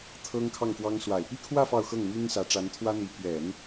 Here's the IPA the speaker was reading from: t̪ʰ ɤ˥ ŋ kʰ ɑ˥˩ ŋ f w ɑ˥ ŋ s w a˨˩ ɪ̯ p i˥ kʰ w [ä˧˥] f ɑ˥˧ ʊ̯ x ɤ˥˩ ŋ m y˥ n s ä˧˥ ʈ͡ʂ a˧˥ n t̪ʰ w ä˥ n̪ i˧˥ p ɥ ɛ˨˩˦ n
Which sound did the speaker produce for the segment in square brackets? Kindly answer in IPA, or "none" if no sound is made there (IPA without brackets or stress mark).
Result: ä˥˧